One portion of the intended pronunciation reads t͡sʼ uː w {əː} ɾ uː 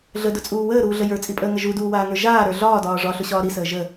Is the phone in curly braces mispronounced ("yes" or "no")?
no